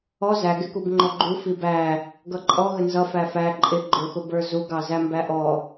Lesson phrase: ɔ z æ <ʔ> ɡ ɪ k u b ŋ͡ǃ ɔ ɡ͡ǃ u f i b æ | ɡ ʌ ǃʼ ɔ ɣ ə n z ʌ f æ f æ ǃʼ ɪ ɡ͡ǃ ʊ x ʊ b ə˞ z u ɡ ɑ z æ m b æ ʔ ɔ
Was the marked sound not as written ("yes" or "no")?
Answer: yes